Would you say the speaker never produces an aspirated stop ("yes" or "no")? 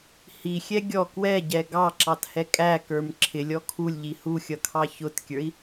no